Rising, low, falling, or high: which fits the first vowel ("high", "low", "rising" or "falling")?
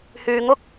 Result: low